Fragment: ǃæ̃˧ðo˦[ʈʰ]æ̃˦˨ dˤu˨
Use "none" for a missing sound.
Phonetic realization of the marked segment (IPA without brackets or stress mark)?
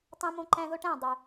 ʈ